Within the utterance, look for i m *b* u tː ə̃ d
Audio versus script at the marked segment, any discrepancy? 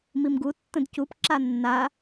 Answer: yes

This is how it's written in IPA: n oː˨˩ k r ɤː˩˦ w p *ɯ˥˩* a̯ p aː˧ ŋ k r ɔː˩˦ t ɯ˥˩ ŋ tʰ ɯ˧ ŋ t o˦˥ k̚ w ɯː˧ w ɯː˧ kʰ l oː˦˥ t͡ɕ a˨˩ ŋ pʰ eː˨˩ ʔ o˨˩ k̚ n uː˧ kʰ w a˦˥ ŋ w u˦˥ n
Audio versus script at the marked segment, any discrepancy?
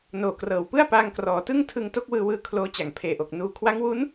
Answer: no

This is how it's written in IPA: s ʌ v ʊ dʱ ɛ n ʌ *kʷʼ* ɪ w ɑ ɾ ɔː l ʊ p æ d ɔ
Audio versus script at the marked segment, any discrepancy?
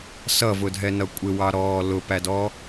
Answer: no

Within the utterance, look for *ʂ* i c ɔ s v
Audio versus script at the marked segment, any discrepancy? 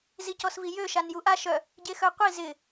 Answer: yes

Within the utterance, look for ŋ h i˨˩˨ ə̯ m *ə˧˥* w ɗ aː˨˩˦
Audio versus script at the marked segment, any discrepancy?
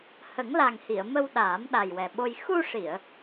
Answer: yes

